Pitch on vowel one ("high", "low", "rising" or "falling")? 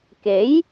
rising